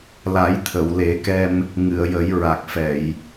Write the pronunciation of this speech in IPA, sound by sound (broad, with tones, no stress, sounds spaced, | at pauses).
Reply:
l a˨˩˦ j t̪ʰ ə˨˩˨ w l e˨˩˦ k ɛ˧ m | ŋ ɨ˨˩˨ ə̯ j ə˨˩˦ j ɹ a˨˩ k̚ f ɛ˨˩˨ j